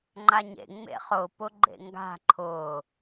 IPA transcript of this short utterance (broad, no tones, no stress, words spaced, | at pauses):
ŋ͡ǃaɲḛ ŋ͡mḛχʊ pʊɡ͡ǃḛŋɡa̤ ǃʰʊː